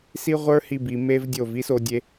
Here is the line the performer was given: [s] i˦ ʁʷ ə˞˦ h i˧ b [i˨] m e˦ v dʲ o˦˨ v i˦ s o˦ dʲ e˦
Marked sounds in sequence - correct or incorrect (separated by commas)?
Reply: correct, correct